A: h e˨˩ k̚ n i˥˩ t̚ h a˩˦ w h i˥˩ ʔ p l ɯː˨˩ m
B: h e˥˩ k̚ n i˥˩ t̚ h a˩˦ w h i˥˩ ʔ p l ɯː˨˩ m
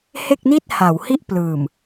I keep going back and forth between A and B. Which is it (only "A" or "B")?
B